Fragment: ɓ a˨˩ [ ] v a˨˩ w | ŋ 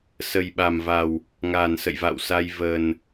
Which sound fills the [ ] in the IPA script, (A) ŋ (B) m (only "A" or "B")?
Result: B